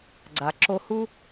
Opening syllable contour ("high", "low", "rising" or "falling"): low